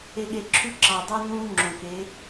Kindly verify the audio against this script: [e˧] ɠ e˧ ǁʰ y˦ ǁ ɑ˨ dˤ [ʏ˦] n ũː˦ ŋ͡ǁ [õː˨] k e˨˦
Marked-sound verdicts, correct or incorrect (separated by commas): correct, incorrect, incorrect